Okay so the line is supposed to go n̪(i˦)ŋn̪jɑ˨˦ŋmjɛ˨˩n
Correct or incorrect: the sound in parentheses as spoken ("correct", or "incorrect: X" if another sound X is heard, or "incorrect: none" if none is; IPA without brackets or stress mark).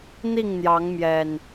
incorrect: i˥˨